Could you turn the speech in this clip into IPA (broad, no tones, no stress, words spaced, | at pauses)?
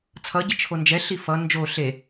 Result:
t͡sʰʌɟi t͡ʃʰond͡ʒɛɬi fʌ nd͡ʒo ɬe